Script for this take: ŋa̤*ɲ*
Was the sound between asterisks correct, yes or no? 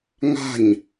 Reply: yes